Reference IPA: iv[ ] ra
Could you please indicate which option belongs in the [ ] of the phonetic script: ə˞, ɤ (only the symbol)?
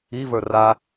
ə˞